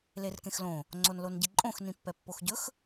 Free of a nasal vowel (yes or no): no